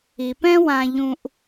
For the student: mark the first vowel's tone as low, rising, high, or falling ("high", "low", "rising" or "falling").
low